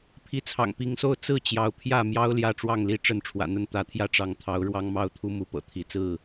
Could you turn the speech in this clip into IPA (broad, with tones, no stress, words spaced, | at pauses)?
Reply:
pʰi˨˦t͡sʰɑ̰˨˩ŋpi˨˦ŋso˦ʊ̯ t͡sɹ̩˥˨t͡ɕjɑ˨˦ʊ̯pʰjä˥˨mjɑ˦ʊ̯ ljä˥˨ʈ͡ʂwɑ˥˨ŋli˦ ʈ͡ʂə˥˨nʈ͡ʂʰwä̰˨˩n̪ə˥˨n t̪ä˨˦t̪ʰjä˦ʈ͡ʂɑ˨˦ŋ t̪ʰɑ˨˦ʊ̯ ɻwɑ˦ŋmɑ˦ʊ̯t̪ʰu˦ mu˨˦pɤ̰˨˩ t̪ʰi˨˦t͡sɹ̩˥˨